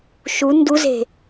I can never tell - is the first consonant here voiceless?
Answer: yes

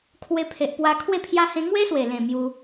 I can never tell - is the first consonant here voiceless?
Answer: yes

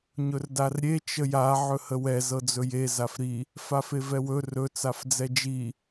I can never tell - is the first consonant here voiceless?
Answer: no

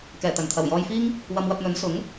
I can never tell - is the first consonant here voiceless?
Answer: yes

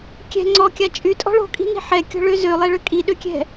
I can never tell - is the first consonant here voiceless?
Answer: yes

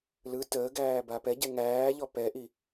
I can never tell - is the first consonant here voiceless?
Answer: no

